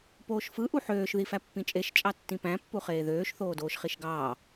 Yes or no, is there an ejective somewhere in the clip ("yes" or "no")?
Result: yes